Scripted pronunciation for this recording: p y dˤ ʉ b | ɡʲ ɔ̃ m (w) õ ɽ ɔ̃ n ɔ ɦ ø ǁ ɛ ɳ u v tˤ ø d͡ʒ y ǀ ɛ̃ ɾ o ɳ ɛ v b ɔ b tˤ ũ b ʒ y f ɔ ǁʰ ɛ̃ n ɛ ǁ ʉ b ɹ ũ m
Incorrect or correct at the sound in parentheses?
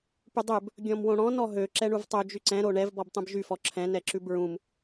correct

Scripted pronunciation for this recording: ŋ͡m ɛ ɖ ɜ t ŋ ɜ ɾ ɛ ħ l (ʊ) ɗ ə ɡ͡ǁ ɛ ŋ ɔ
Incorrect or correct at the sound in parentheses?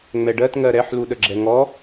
incorrect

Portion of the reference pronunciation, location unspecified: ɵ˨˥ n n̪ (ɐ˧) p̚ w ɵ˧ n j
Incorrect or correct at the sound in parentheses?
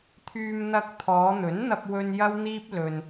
correct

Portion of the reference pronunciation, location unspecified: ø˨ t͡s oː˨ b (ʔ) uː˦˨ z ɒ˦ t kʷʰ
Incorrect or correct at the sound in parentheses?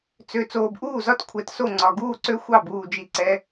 correct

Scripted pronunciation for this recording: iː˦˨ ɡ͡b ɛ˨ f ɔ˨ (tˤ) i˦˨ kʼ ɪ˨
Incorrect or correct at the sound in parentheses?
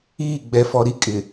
incorrect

